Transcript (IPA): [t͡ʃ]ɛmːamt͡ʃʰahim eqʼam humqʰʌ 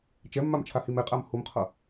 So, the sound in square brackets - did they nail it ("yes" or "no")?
yes